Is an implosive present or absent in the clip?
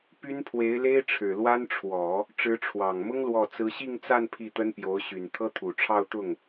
absent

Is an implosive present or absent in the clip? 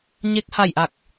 absent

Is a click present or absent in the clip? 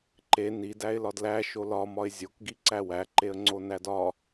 present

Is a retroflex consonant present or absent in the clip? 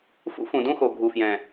absent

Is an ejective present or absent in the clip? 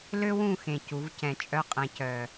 present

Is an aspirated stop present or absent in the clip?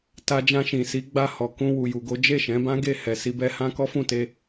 absent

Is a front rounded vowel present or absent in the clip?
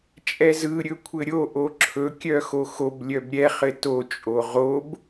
present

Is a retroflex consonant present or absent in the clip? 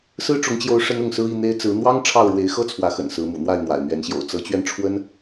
present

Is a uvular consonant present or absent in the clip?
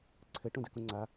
absent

